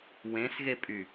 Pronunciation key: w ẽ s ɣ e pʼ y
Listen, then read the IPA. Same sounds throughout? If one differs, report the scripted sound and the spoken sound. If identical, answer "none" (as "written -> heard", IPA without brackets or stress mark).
none